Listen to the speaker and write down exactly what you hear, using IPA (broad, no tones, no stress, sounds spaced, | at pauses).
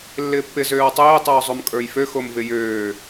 lː ɪː pː ɪ z øː w tˤ eː tˤ øː zˤ o m kʼ ə˞ j f ø x o m v ɪ j øː